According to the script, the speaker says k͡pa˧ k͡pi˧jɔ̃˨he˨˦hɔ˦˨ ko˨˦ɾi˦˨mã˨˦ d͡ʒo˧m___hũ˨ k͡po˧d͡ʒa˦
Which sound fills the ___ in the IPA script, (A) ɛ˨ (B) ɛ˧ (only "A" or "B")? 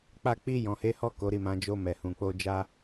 A